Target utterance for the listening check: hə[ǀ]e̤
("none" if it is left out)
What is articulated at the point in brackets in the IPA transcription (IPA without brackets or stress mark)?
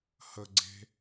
ɡ͡ǀ